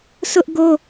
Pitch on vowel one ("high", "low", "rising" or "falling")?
high